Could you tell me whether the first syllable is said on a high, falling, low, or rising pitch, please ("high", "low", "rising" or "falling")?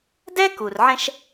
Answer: high